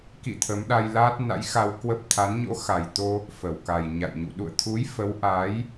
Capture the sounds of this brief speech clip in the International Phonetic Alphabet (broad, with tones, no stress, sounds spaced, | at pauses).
k ḭ˧˨ t̪ʰ ə˨˦ m ɗ a˧ j l aː˦˥ t̚ n a̰˧˥ j x a˧ w k w ə˦˥ p̚ t̪ʰ a˨˦ n ɲ o̰˧˥ x a˨˩ j t̪ o˧ | f ə˧˩ w k a˨˩ j ɲ a̰˧˨ j ɲ ṵ˧˨ ɗ ṵ˧˨ ə̯ t̪ʰ u˨˦ j f ə˨˦ w ʔ aː˨˦ j